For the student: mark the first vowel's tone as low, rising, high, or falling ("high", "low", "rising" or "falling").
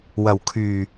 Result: low